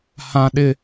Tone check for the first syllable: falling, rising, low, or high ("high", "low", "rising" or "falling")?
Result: high